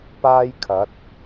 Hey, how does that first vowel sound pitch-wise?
high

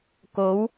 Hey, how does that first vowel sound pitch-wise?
rising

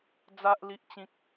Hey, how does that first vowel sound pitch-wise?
high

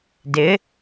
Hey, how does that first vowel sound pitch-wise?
rising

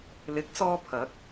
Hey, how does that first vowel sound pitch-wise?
rising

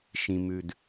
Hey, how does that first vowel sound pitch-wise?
low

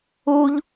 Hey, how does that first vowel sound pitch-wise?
high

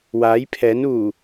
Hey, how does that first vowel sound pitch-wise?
rising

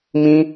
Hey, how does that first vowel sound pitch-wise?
high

